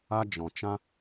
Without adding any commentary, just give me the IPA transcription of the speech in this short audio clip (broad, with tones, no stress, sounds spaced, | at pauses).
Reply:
a˦ d͡ʒ ɔ̃˨ t͡ʃ ã˦